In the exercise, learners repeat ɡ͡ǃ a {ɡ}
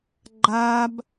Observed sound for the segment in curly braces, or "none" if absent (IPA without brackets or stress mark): b